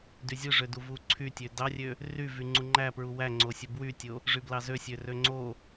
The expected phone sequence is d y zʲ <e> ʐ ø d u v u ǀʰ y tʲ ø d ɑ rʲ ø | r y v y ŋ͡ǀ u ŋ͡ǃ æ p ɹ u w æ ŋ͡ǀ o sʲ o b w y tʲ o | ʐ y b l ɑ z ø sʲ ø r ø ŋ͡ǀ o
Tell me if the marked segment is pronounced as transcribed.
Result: no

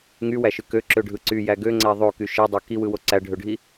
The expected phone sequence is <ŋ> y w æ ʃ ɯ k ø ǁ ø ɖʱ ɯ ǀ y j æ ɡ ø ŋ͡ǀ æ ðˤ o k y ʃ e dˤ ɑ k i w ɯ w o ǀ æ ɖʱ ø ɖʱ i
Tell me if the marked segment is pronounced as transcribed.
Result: yes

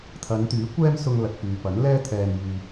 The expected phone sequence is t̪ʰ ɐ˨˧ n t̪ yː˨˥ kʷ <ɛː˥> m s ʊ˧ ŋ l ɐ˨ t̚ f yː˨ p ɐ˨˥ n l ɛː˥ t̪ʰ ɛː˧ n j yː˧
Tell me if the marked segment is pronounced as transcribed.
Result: yes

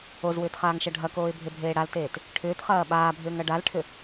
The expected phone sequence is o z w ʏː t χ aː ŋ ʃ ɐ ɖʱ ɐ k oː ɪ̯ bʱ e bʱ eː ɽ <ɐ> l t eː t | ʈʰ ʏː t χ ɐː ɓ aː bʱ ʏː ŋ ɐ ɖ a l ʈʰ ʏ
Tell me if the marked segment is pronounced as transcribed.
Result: no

